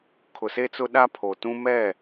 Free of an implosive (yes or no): no